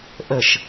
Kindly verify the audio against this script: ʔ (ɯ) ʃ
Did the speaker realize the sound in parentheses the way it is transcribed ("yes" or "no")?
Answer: no